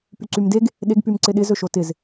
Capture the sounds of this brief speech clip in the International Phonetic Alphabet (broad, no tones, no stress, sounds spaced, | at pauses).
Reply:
p y ǀ y m d e ɡ | ɗ e ɡ p y m ǀ ɪ ɗ ɪ z ɵ ʃ o t ɪ z